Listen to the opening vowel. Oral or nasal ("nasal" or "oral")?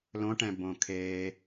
nasal